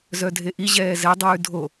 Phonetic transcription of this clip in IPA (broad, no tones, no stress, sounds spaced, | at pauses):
z œ dʱ e ʔ i ʑ ɛː z ɛ dˤ ʉː dʱ o